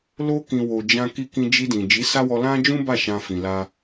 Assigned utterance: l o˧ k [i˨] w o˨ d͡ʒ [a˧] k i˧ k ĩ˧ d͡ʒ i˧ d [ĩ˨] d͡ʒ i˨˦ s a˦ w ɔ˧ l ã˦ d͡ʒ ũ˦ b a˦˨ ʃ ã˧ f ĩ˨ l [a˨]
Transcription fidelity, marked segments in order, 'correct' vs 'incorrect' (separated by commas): incorrect, incorrect, correct, incorrect